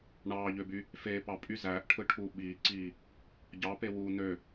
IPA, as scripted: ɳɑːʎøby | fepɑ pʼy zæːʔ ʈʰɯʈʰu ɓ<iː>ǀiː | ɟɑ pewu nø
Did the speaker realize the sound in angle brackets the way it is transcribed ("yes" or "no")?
yes